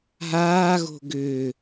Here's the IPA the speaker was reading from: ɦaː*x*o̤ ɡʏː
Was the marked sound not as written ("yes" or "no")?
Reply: yes